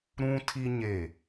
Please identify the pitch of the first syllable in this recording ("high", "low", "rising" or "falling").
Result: high